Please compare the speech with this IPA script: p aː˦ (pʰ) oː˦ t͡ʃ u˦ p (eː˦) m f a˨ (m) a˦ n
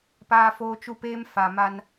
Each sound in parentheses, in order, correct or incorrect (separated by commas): incorrect, correct, correct